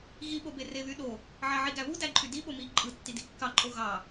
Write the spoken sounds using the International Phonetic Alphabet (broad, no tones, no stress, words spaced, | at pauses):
ɣiɓobe reβyɗo | ʕɑʕiɡæβu dæǃʼydi ɓomi ǃʼɯtːi dikːɑǃʼo ɣɑ